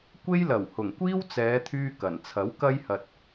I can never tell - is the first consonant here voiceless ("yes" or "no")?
yes